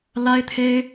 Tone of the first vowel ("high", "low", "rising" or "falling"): high